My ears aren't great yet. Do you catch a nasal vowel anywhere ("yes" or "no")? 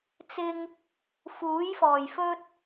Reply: no